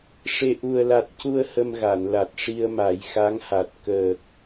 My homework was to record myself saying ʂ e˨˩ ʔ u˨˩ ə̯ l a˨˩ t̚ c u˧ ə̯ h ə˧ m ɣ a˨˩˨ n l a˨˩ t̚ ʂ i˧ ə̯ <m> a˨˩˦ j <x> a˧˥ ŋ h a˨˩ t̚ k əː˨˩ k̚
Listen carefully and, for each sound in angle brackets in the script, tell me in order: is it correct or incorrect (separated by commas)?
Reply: correct, correct